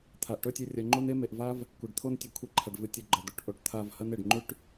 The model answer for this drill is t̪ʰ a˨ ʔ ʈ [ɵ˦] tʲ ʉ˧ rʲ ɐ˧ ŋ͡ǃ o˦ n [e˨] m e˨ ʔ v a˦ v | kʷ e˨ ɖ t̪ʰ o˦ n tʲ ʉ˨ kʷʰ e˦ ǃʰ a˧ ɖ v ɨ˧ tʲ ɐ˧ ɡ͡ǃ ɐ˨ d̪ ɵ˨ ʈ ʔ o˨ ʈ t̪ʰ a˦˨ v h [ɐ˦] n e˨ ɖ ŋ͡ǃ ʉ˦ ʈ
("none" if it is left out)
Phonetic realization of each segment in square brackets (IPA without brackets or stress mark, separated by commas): ɵ˦, e˦, ɐ˦